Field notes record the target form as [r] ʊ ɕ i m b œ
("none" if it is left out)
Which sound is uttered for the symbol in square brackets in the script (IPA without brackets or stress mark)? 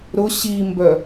ɾ